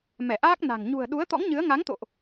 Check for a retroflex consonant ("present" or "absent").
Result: absent